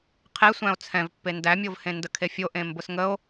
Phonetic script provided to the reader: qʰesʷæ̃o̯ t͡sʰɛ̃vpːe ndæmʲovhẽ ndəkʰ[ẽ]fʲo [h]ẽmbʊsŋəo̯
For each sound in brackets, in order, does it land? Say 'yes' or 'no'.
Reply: no, no

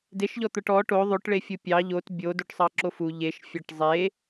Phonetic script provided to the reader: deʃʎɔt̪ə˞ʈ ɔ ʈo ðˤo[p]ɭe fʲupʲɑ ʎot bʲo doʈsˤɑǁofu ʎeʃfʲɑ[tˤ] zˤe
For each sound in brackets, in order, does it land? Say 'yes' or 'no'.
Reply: no, no

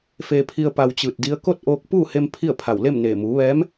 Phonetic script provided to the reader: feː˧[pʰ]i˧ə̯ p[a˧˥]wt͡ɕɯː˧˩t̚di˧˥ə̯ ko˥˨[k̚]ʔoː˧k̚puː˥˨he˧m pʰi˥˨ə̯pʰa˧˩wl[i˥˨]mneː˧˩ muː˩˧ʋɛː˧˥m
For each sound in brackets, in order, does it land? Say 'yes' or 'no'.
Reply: yes, no, no, no

